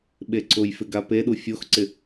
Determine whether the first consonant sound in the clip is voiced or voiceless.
voiced